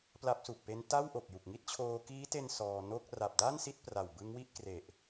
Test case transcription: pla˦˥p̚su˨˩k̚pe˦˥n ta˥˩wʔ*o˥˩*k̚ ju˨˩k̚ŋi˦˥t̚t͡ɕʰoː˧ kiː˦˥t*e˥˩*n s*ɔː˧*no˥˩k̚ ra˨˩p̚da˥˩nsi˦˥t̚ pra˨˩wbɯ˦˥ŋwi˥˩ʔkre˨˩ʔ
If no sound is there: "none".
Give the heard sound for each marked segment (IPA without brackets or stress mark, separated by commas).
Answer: o˨˩, e˧, ɔː˧